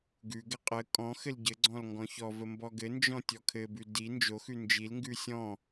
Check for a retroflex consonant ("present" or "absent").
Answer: absent